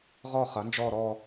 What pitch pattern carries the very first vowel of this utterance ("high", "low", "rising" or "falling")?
falling